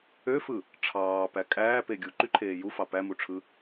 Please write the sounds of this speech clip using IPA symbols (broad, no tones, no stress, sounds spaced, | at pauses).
ø f ɯ | ʈ͡ʂʰ ɑː p æ kʼ æː p e ɡʲ u ǃ y ǃʰ eː j u f ɑ p æ m u ʈ͡ʂʰ ɯ